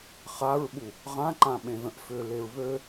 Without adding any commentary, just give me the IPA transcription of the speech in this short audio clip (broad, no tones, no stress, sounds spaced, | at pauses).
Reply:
χ a ɹ ɓ u | ʁ ã ǃ ã ɓ ẽ ð ə̃ ʔ f ʏ l e ɹ β ø